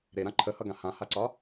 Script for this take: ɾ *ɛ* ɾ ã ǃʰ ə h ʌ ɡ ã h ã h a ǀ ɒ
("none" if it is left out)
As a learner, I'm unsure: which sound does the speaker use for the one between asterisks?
e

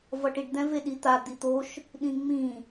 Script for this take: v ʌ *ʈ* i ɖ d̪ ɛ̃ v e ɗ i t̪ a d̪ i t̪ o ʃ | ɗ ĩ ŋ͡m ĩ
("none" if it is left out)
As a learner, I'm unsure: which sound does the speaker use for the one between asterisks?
ʈ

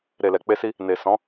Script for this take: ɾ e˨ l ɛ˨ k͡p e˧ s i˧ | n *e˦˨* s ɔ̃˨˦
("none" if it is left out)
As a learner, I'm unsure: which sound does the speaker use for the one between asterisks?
e˨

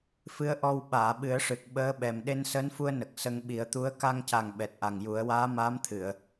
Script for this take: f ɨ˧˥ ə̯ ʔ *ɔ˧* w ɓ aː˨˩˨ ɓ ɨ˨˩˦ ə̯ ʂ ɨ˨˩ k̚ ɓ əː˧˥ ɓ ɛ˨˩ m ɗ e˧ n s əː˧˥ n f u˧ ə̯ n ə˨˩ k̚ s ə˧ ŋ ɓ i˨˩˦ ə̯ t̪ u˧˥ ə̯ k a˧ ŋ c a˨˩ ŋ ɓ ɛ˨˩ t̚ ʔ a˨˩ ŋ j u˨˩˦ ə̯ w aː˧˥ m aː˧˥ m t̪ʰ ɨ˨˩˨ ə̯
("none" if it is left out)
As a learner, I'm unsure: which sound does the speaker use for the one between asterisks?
ɔ˧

